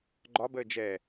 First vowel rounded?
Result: yes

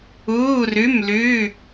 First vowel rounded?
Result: yes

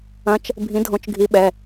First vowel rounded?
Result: no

